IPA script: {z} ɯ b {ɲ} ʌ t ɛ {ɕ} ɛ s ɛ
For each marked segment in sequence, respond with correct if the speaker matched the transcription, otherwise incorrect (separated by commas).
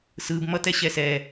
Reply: incorrect, incorrect, correct